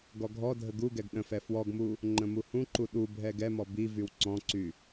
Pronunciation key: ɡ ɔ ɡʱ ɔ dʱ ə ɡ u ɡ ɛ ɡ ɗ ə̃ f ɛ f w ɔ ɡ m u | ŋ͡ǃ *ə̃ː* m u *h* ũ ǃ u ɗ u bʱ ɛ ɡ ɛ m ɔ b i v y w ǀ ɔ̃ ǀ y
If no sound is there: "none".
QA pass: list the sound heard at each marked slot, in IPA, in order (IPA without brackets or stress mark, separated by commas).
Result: ə̃, h